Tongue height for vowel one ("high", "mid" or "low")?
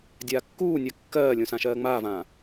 low